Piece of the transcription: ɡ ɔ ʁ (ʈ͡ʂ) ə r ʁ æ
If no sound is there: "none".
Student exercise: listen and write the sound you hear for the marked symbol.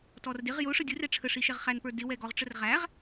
ʈ͡ʂ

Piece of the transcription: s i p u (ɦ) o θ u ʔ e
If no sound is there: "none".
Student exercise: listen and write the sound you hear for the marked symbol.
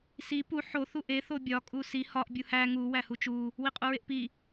ħ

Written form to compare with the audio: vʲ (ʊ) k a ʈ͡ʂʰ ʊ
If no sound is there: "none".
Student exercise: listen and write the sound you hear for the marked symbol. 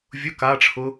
ʊ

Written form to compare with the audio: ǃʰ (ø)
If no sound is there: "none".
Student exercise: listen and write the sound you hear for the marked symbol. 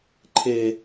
e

